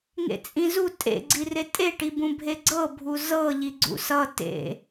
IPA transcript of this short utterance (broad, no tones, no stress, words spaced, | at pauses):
ŋḛt͡sʼĩzu tʼḛ ɡ͡ǀiretʼe ʈibũbʱeɡ͡ǀɤ bʱuzɤ ʎiɡ͡ǀṵsʌ tḛ